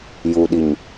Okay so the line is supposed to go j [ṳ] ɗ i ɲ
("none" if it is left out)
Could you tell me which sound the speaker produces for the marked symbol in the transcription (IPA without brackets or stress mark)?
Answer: u